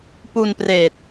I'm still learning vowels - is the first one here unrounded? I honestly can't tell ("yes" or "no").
no